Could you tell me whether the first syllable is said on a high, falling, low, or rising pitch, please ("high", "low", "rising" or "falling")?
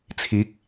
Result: rising